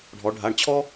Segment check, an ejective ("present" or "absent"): absent